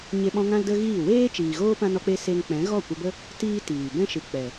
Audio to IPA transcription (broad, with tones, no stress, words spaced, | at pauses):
ɲe˧ɓɔ̃˧ ŋã˦ldə˦ɣiː˦˨ weː˦ t͡ʃiː˨ɣoː˦ pã˦nɔ˦k͡pe˦ se˦ŋ k͡pɛ̃˨˦ɣɔ˦˨kʷə˧bə˦ | tiː˦tiː˨ bɛ̃˦ʃɨ˨ k͡pɛ˨